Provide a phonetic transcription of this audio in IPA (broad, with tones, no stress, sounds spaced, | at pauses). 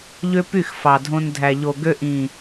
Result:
ʎ ø˦ p y˦˨ x f ɑ˨ dʱ õ˧ n dʱ æ˨ ʎ o˨ ɡ ø˧ ʔ ĩ˨